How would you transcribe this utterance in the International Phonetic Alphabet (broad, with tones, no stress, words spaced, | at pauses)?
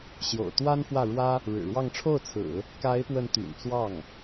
ɕjo̰˨˩ʊ̯t̪wa˥nfwä˥˩ɻwä˥ | ɻɻ̩˨˩ɻwɑ˥˧ŋ ʈ͡ʂʰo˥˩ʊ̯t͡sʰɹ̩˨˩˦ | ka˧˥ɪ̯pwə˧˥n t̪y̰˨˩nt͡swɑ˥˩ŋ